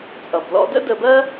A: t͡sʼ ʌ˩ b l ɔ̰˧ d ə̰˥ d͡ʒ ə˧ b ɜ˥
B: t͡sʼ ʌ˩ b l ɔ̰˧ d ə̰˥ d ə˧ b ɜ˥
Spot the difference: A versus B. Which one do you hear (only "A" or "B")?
B